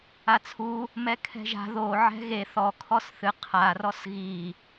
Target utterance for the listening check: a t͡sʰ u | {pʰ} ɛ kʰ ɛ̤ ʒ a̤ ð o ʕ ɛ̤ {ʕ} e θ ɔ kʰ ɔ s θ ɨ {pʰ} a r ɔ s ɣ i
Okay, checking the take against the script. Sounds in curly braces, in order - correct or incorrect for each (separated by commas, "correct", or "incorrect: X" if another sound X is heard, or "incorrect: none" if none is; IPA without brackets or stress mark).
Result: incorrect: m, incorrect: ɣ, incorrect: qʰ